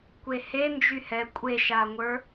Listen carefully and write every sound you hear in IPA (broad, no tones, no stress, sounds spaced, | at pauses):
kʷ e h e n d͡ʒ y h ɛ kʷʼ e ʃ a ŋʷ ə˞